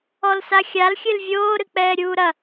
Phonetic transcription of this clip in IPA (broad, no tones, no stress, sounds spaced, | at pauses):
ɔ l s a xʲ a l xʲ ɨ l vʲ oː ɾ ɨ k͡p ɛː ɾʲ uː ɾ ɐ